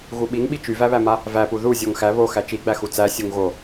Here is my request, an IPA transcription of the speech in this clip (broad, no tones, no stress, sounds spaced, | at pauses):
ɣ u ɓ i ŋ ɓ i t͡ʃ y v æ β æ m a | v æ p u ð u zʲ o ŋ x æ β o x æ t͡ʃ i ɡ͡b æ x u t͡s æ sʲ u ŋ ɣ o